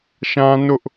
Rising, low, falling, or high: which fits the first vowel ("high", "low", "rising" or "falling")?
high